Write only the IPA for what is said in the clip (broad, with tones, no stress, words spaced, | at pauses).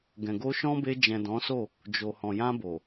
ɡɛ̃˨ɡo˧ʃɔ̃˦be˧ d͡ʒɛ̃˨dɔ̃˨˦so˦˨ | d͡ʒo˨hɔ̃˨ jã˧bo˨